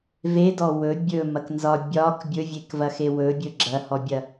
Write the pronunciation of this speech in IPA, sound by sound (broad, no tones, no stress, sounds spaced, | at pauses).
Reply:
v e d ɔ w ɵ bʲ ɵ m ɐ k n z ɒ bʲ ɒ k bʲ ɵ vʲ e k v ɐ x e w ɵ bʲ ɵ ɡ͡ǁ ɐ h ɔ bʲ ɐ